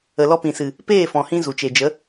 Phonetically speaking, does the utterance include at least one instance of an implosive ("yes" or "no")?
no